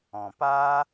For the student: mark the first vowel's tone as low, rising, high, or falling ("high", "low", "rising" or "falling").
low